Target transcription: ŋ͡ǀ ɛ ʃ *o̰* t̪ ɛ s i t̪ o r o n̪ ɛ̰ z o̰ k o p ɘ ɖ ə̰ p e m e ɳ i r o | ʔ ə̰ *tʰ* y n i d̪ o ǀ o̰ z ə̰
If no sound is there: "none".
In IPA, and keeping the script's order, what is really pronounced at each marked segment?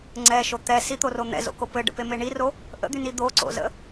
o, d̪

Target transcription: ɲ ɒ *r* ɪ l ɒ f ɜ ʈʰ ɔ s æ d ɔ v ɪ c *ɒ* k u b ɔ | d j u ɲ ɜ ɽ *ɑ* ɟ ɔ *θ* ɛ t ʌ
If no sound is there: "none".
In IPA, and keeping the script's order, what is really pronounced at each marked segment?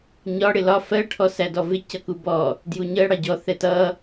ɽ, ʌ, ɑ, θ

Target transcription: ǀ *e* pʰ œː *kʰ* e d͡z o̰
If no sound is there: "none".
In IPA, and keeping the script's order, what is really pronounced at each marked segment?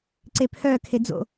e, kʰ

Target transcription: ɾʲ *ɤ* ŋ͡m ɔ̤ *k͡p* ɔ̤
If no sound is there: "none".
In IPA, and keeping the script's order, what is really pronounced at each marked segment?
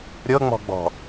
ɤ, ɡ͡b

